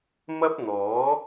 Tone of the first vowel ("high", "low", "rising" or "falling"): high